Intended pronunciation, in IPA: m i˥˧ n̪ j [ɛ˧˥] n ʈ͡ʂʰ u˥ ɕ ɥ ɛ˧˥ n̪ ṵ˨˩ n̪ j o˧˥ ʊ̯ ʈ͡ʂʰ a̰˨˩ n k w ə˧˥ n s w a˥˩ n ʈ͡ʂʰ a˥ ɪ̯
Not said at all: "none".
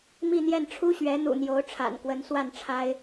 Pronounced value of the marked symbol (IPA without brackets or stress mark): ɛ˥˩